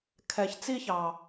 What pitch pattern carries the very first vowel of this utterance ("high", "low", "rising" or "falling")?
low